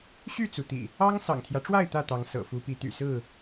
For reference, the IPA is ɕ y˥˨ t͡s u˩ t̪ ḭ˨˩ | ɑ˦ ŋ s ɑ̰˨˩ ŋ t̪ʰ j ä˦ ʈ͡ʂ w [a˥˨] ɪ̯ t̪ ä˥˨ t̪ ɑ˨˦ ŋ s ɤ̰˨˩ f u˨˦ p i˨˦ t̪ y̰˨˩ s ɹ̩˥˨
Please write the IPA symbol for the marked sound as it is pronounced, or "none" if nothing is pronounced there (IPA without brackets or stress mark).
a˥˨